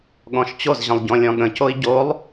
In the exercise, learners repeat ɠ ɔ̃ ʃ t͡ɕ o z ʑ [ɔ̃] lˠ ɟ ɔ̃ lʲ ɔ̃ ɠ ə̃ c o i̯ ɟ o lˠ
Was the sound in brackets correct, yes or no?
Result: no